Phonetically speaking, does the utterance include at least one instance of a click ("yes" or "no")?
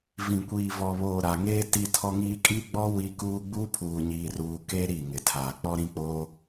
no